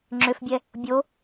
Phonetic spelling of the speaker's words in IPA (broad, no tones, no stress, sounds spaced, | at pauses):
ŋ͡ǁ ʏ f bʲ ɛ | bʲ o